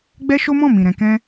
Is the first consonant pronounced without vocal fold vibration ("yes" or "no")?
no